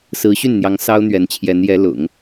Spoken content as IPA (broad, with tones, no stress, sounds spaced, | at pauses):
s ɹ̩˧˥ ɕ y˥˩ n n̪ j ɑ˧˥ ŋ s ɑ˥ ʊ̯ n̪ ɥ ɛ˧˥ n t͡ɕʰ j ɛ˧˥ n j ɛ˧˥ l ʊ̰˨˩˦ ŋ